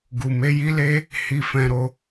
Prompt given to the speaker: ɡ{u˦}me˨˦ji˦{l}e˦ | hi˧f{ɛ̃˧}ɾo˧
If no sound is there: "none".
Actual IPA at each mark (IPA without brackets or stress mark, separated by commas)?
u˨, l, ɛ̃˧